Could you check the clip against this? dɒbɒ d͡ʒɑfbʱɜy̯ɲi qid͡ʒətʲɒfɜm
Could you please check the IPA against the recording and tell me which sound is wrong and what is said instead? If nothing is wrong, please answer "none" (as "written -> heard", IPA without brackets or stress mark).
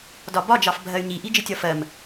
q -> ʔ